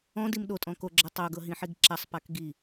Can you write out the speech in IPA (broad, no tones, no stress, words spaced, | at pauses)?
ɔ̃dim ɗotʼɔ̃ koɡ͡ǁɤ tˤoɡɤɦĩħiɡ ǁasˤpak ɡi